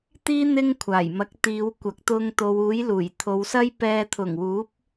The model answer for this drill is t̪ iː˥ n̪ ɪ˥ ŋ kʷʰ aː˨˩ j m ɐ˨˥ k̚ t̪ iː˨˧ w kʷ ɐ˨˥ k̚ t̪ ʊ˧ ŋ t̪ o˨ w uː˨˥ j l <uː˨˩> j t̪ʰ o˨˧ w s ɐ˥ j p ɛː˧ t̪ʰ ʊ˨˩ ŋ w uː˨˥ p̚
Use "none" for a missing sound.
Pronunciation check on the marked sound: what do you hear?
uː˨˩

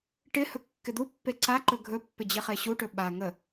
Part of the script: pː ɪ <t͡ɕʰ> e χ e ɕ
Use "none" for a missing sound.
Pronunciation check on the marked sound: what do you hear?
d͡ʑ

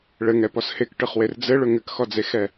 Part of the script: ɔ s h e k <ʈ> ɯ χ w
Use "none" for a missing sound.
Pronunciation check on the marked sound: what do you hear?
ʈ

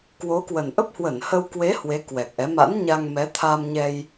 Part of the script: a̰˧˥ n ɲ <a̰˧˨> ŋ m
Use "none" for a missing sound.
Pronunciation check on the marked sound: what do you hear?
a˧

